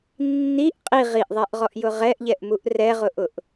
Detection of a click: absent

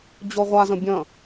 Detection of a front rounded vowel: absent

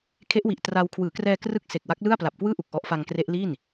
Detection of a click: absent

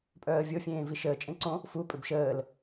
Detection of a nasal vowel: present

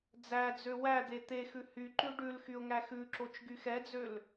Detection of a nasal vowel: absent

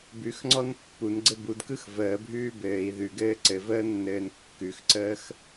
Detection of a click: present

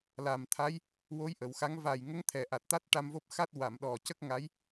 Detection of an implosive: present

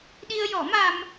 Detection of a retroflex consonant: absent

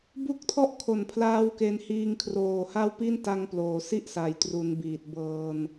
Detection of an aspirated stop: present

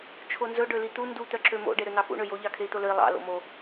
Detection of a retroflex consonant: present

